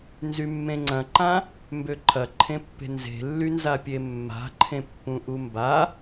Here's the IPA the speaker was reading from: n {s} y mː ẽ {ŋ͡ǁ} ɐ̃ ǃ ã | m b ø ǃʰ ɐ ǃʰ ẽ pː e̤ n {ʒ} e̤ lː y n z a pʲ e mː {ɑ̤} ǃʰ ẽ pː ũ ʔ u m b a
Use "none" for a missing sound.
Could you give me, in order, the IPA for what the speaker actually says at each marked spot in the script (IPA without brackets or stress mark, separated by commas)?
z, ŋ͡ǀ, z, a̤